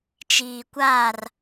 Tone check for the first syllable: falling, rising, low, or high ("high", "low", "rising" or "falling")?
low